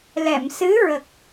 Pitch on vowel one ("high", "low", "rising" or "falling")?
low